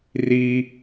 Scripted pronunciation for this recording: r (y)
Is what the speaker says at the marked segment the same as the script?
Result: no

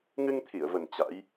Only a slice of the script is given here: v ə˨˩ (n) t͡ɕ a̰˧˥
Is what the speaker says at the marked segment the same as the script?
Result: yes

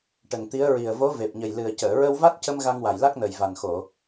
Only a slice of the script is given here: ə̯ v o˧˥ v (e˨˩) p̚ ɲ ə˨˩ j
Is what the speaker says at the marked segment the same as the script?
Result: yes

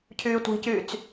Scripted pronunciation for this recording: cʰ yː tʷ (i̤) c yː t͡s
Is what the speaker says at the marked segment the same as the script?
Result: yes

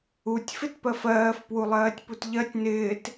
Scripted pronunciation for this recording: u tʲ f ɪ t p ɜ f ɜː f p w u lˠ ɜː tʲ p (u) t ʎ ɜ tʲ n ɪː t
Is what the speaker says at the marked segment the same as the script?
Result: yes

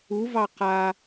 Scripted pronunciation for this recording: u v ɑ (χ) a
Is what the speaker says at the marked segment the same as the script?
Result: no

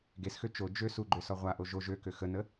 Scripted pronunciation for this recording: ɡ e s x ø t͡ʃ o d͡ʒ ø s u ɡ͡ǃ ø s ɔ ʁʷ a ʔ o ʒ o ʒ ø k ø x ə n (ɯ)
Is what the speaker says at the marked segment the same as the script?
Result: no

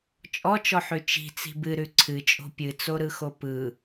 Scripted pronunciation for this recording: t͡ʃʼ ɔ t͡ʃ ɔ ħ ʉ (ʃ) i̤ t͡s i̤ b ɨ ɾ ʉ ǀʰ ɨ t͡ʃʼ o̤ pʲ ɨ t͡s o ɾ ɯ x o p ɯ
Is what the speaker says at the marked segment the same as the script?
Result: no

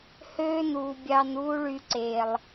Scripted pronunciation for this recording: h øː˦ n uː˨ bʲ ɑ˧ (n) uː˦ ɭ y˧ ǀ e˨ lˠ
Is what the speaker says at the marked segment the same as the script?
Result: yes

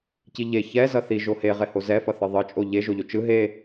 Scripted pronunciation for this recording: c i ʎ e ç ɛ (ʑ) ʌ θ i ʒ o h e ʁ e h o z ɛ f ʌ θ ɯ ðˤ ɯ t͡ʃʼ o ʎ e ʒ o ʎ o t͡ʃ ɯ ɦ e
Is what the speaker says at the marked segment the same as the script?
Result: no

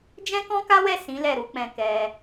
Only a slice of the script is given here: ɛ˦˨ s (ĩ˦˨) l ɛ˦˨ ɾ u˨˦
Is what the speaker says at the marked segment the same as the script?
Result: no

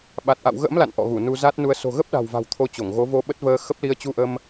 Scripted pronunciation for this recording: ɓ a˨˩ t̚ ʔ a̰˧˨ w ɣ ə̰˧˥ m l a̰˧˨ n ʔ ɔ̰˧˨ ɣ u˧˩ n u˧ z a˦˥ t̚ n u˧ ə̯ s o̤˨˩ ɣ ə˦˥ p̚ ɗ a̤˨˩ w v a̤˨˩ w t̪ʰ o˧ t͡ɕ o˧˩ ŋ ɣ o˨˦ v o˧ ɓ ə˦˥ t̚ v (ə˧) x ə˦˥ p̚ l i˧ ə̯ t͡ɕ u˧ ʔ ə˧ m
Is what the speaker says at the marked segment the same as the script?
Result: no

